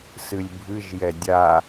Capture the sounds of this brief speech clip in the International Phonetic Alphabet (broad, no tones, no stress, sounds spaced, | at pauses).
s ɨ lʲ bʱ ɨ ʒ j ɛ dʲ a